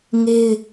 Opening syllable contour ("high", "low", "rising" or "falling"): high